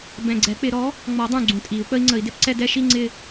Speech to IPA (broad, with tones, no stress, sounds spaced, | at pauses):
b ɛ̃˨˩ ɡ͡ǀ ɛ˨˩˦ k͡p ɪ˨˩˦ ɾ ɔ˩˥ | ŋ͡m ɔ˨˩˦ dˤ ũ˨˩ ɡ͡ǀ ũ˨˩ tʼ i˨˩˦ u̯ k͡p ə˧˥ i̯ ŋ͡ǀ ə˨˩˦ i̯ d ɪ˧˥ p ǀ ɛ˥˧ d ɛ˥˧ ʃ i˥˧ ŋ͡ǀ ɪ˥˧